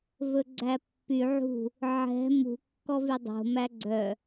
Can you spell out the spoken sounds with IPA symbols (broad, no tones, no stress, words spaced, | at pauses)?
vɵɡ͡ǀæpːy ʕṳ | ʕɛ̤ mṳ kːɔvydˤo̤ mæɡ͡ǀœ